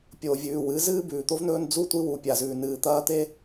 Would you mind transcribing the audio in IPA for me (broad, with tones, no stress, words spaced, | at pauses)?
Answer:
pʲoː˨vʲʉː˨wɨ˨˦ zɨː˦bʉː˨t̪o˦vnɵː˦n d͡zu˦ tʷi˦wu˨pʲa˨zʉː˨ nɨː˨ t̪ɐː˦t̪e˦